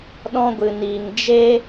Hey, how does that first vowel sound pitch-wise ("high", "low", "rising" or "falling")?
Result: high